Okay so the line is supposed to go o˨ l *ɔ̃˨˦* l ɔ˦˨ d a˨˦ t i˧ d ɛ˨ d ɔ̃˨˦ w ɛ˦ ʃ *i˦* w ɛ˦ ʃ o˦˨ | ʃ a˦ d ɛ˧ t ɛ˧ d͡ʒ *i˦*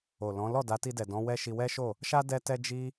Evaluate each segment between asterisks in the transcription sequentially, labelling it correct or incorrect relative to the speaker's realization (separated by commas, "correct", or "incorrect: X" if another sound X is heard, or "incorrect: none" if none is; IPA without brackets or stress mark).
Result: correct, incorrect: i˧, correct